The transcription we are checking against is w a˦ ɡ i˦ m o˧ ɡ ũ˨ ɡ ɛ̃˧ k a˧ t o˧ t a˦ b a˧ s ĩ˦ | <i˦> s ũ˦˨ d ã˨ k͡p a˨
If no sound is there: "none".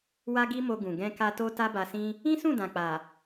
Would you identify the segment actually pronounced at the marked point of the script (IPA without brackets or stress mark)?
ĩ˦